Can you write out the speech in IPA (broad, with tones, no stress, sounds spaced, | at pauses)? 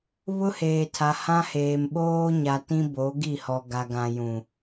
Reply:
β ʊ˦ h eː˨ tʰ a˨ h ã˦ h eː˨ m ɓ oː˦ ɲ a˨ t ĩ˦ b o˨˦ ɡ i˦˨ h ɔ˨ ɡ a˨ ɡ ã˨ j ũ˨